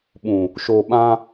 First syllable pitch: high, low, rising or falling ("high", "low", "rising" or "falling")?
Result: low